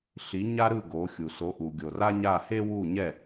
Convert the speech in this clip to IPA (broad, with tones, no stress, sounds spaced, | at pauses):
ɬ i˨˦ ɲ a˦ ɾ ɯ˦˨ ɡ o˨˦ xʲ u˨ s o˨˦ ʔ u˨ ɡʲ o˨ r a˦ ɲ a˦˨ h e˦ w u˦˨ ɲ ɛ˦˨